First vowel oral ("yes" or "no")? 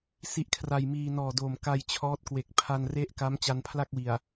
yes